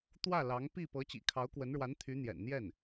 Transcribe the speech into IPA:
t̪ w ä˥˩ l ɑ˧˥ ŋ p i˥˩ p ɤ˧˥ t͡ɕ ḭ˨˩ kʰ ɑ˧˥ ʊ̯ k w ə˧˥ n ɻ w a˧˥ n t̪ʰ y˧˥ n̪ j ɛ̰˨˩ n n̪ j ɛ˥˩ n

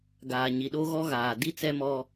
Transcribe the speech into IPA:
ɡ aː˨ ɲ i˨ ɗ o˦ ɣ ɔ˦ ɣ aː˨ d i˦ t͡s ɛ˦ m ɔ˦

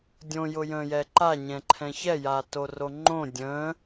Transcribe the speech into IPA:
dʲ õ j ʊ j ə̃ː j ɛ ǃ a ɲ ɛ̃ ǃʰ ɛ̃ ç ɛ j aː t o r o ŋ͡ǃ õ dʲ ə̃ː

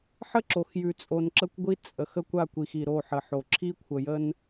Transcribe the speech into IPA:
ħ ə˦ ǁ o˨ x j ʉ˨ t͡sʼ o˨ n ǁ ə˦ kʷ ɡʷ i˦ t͡sʼ ə˨ x ə˦ kʷ a˦˨ kʷ i˨ x i˨ ɾ o˦˨ ħ ə˨ ħ o˨ ǁʰ i˦ kʷʰ ə˨ j ə˦ n

